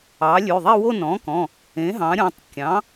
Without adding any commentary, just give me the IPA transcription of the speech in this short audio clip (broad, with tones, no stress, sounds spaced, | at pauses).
ɑ˩˥ lʲ ʉ˩˧˩ ðˤ e˥˧ w o˥˧ n ɔ̃˩˥ k ɔ̃˩˧˩ | ẽ˩˥ ɦ ɑ̃˩˥ ɾʲ ɔ̃˩˧˩ tˤ kʲ ɑ̃˩˥